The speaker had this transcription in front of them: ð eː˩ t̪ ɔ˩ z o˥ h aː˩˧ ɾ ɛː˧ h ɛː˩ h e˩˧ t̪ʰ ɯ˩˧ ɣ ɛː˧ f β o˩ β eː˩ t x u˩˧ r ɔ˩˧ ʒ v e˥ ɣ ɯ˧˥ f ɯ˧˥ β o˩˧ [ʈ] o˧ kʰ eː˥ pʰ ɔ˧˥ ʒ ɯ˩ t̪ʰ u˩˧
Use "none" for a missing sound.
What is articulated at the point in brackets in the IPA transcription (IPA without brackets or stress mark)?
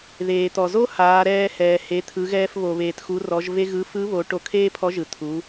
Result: ʈ